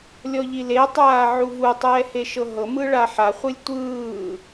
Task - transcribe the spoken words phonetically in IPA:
lʲ ɔ ʎ i l e tˤ aː ʕ u v u tˤ ɛː h e ʃ ɤ ɦ ɤ m ɯ ɭ a ħ a χʷ ɯ lʲ tʷ ɯː

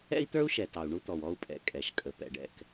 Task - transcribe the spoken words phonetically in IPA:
ɛ̰˦ i̯ t̪ ə˞˦ u̯ ʃ ɛ˨ t ɑ˨ u̯ ɳ u˦ t̪ ɔ˨ w ɔ˦ u̯ pʼ ɛ̰˨ kʼ ɛ˨ ʃ kʼ ə˨ p ɛ̰˨ ɖ ɛ̰˧ k

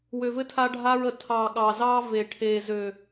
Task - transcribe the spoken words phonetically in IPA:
w ø˨ v ɘ˦ tʰ a˦ ɖʱ a˦ ɹ ə˨ tʰ ɑ˨ ɠ ɑ˨ z ɑ˦ v e˨ ʈʰ e˨ z ø˨

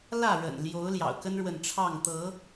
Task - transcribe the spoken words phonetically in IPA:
l ä˥˨ ɻ ə̰˨˩ n l j o˨˦ ʊ̯ l j ɑ̰˨˩ ʊ̯ k ə˦ n ɻ w ə˨ n ʈ͡ʂʰ ɑ˥˨ ŋ t̪ ɤ˨˦

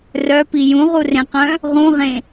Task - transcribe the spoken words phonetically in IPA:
r œ p i j ũ ʁ u r ẽ q œ̃ | ʁ ũ ʁ ẽ

